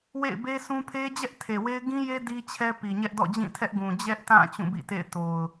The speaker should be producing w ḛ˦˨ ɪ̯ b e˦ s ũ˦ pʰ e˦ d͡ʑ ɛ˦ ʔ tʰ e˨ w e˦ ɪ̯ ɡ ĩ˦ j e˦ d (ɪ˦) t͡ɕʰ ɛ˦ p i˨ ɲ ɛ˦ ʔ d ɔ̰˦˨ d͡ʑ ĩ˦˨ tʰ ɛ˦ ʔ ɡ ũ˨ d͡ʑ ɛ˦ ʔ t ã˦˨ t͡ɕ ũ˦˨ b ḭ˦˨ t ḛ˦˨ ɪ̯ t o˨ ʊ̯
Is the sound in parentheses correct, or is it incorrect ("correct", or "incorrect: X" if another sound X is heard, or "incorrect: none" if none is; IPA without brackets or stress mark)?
incorrect: i˦